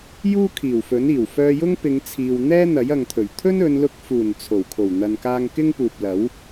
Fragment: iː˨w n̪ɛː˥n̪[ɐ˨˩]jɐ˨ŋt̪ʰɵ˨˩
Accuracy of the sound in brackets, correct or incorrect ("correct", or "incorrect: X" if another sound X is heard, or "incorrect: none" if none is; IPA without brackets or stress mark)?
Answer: incorrect: ɐ˨˥